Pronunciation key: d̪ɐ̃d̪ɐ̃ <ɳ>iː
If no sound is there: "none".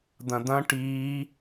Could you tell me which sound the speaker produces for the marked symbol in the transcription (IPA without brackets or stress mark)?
ʈ